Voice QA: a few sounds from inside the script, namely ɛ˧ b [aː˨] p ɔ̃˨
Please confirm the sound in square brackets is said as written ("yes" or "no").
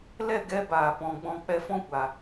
yes